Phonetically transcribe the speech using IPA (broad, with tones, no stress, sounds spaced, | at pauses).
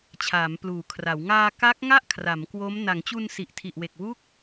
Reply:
t͡ɕʰ aː˩˦ m p l uː˩˦ kʰ r a˩˦ w ŋ aː˧ k a˦˥ k̚ ŋ a˥˩ ʔ kʰ r a˩˦ m k w o˦˥ m n a˩˦ ŋ t͡ɕ u˧ n s i˨˩ ʔ tʰ i˨˩ ʔ w e˨˩ k̚ w u˦˥ k̚